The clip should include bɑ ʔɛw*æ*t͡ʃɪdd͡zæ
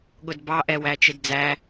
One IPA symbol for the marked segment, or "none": æ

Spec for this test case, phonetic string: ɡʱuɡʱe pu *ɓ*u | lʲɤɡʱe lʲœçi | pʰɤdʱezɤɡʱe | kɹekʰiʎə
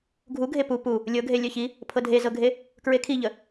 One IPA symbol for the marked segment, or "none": p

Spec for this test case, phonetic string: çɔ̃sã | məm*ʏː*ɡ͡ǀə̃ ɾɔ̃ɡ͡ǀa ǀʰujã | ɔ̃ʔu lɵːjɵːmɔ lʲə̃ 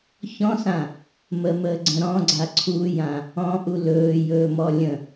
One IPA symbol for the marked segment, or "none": əː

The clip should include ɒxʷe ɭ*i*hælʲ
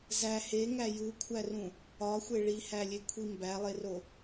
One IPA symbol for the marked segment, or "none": i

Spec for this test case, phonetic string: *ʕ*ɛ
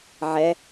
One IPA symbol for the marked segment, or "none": ʕ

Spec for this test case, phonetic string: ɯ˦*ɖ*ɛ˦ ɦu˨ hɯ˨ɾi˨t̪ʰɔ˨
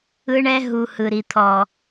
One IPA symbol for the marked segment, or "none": ɳ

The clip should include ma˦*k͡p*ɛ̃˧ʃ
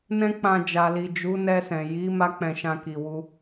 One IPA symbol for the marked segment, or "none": k͡p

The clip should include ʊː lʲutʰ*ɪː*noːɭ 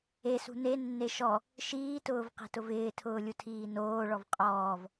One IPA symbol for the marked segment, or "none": iː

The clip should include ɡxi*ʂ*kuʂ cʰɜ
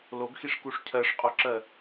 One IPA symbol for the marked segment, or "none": ʂ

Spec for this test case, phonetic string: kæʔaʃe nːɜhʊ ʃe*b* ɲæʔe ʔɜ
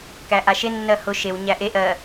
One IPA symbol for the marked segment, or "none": w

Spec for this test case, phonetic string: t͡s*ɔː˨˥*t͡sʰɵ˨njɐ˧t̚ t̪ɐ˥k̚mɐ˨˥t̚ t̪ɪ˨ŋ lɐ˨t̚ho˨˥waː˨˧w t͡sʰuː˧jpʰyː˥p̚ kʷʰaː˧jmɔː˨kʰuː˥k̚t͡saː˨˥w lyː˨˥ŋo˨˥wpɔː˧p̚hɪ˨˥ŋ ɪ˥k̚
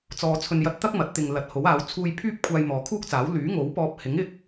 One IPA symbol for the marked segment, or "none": ɔː˨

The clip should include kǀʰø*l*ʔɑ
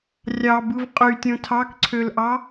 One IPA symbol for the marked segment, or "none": l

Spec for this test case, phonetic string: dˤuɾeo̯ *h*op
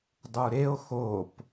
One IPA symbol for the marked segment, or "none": x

